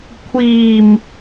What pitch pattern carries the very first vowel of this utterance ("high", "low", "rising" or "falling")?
low